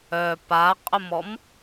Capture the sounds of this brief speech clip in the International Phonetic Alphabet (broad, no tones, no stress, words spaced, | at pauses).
œ paqʼʊmɔm